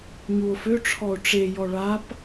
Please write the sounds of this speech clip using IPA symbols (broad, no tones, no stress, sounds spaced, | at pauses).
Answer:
ɲ u o̯ f ø ʈ͡ʂʰ ɔ o̯ ʈ͡ʂ e j ɔ ɭ a p